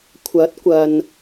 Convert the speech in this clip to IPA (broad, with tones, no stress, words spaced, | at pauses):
kʷʰɐ˨˥t̚ kʷɐ˨n